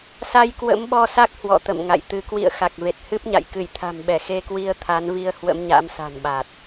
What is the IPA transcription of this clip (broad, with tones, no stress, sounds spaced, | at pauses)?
s a˧ j k w ə̰˧˥ m ɓ ɔ˧ s a˦˥ k̚ h w ɔ̰˧˨ t̪ ə̰˧˨ m ŋ a̰˧˨ j t̪ ɨ˧ k w ḭ˧˨ ə̯ x a˨˩ k̚ v e˨˩ t̚ h ɨ˦˥ p̚ ɲ a̰˧˨ j k ɨ˧˩ j t̪ʰ a̤˨˩ m ɓ ɛ˧˩ x e˧ k w i˧ ə̯ t̪ʰ a˨˦ n v i˧ ə̯ h w ə̰˧˥ m ɲ a̰˧˥ m s a̤˨˩ n ɓ a˨˩ t̚